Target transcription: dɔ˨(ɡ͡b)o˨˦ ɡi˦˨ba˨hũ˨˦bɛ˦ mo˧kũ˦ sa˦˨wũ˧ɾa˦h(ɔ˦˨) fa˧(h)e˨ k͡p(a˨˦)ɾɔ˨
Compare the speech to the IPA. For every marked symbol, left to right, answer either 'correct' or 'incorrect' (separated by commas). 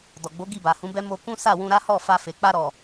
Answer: correct, correct, incorrect, incorrect